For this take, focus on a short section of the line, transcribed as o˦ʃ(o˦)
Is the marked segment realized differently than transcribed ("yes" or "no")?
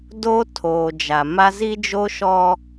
yes